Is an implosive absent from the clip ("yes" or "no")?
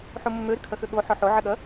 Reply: no